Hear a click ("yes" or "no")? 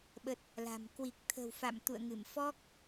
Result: no